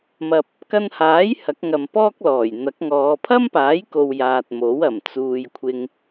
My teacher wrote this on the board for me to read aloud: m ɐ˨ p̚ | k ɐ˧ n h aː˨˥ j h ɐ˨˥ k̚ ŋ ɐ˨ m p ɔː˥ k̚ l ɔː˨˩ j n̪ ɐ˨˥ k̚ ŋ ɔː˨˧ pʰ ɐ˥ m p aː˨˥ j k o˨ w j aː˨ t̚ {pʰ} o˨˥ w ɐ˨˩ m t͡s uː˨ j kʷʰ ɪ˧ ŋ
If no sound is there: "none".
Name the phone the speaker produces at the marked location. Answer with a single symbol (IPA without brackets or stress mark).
m